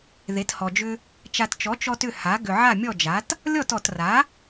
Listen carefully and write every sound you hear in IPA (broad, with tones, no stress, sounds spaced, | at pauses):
ð e˩˥ t h ɔ˨ d͡ʒ ʏ˦ | t͡ʃ a˨ t t͡ʃ ɔ˩˥ t͡ʃ ɔ˦ t ʏ˥˩ h a˩˥ ɡ ʏ˨ ʕ a˥˩ mʲ ɔ˥˩ d͡ʒ a˩˥ t | lʲ ɔ˥˩ t ɔ˨ t r a˩˥